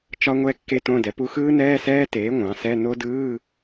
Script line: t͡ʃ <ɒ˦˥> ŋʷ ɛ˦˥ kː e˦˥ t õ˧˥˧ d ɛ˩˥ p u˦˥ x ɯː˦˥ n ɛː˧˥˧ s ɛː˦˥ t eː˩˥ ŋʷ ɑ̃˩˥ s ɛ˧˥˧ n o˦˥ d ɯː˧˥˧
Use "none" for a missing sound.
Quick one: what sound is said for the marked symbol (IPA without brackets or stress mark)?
ɒ˦˥